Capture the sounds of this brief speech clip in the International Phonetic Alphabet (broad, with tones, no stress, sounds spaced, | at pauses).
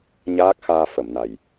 ɲ aː˦˥ k̚ x aː˧ f ə˨˩˨ m n a˨˩ j